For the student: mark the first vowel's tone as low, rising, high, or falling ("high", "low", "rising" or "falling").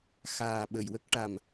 low